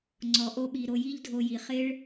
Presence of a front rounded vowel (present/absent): absent